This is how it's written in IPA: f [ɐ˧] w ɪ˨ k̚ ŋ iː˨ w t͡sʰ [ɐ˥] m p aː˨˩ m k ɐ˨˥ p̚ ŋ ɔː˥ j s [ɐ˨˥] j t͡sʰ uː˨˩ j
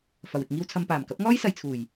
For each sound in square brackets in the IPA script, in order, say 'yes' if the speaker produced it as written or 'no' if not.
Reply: no, no, no

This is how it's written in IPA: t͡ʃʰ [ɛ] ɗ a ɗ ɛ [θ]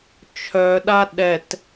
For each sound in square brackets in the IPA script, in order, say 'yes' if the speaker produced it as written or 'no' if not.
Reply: no, no

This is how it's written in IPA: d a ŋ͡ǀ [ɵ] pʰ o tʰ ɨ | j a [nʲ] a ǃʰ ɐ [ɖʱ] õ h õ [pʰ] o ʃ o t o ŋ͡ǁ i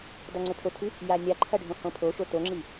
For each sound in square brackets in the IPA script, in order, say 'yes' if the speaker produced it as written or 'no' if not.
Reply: yes, yes, yes, yes

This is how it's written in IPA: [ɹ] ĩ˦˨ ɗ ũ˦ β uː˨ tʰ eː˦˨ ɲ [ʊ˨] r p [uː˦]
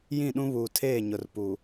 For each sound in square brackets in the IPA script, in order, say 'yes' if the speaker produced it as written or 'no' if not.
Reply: no, yes, no

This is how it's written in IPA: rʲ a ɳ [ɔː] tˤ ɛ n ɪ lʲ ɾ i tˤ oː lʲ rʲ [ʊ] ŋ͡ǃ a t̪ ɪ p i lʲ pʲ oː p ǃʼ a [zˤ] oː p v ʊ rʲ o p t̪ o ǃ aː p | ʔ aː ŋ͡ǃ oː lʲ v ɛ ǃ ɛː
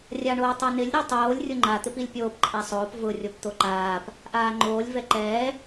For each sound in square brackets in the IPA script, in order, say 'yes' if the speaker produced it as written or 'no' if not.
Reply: no, yes, no

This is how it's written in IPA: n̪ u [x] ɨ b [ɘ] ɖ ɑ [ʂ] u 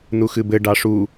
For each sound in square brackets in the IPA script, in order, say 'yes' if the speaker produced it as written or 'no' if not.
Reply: yes, yes, yes

